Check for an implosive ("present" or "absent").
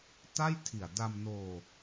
absent